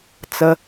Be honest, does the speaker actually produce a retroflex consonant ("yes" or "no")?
no